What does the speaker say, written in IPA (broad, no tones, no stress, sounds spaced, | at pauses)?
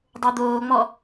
dˤ o d̪ oː ŋ͡m ɔ